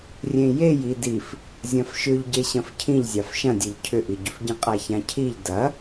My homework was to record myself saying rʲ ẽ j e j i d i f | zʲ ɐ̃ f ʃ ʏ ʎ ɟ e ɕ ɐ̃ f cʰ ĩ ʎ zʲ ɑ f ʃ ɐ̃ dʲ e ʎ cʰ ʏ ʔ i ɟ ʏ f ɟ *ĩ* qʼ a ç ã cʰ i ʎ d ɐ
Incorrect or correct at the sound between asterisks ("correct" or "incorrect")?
correct